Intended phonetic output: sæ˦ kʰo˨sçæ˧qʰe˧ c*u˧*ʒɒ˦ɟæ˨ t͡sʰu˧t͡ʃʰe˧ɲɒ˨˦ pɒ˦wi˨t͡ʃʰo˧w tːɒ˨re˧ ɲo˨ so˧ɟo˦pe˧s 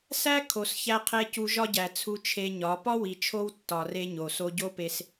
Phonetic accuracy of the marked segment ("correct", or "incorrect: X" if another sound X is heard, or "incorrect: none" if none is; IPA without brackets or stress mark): correct